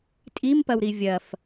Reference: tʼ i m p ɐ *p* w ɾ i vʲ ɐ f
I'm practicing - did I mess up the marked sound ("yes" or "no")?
yes